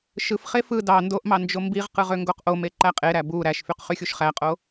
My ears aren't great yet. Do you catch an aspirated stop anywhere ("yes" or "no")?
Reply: no